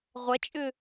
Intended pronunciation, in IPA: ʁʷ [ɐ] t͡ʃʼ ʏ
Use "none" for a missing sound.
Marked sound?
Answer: ɐ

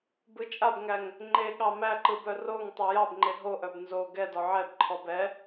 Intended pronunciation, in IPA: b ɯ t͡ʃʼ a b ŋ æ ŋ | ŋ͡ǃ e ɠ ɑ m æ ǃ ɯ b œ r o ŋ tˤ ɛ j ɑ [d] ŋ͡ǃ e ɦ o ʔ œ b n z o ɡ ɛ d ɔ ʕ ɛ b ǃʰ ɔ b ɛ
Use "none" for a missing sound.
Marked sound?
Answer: b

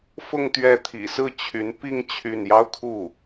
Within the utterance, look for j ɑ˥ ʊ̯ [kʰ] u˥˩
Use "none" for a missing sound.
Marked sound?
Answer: kʰ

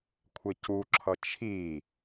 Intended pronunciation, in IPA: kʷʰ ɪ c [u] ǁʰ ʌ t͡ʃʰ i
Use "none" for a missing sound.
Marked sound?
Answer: u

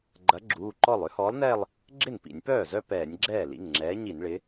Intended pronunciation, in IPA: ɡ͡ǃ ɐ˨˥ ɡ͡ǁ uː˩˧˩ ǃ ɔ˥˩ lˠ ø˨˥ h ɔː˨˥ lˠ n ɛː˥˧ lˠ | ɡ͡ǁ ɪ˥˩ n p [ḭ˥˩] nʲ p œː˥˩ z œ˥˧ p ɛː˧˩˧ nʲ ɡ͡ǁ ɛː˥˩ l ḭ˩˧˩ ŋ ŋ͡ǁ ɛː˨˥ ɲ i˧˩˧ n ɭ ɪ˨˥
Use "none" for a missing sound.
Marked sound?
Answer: ḭ˧˩˧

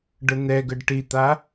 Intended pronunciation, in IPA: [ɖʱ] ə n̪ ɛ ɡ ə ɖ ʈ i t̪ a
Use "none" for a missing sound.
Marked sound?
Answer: ɖ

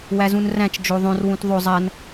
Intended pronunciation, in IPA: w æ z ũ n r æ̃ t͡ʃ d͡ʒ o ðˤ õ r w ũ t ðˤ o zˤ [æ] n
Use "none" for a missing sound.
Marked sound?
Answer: æ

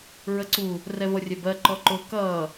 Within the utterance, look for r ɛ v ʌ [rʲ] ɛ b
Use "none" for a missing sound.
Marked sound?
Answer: rʲ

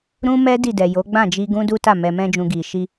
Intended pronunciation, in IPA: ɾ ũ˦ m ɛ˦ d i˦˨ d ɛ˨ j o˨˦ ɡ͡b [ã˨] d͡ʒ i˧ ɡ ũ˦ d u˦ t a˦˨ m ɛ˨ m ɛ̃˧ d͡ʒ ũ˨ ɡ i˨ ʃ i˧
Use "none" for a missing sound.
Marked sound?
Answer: ã˦˨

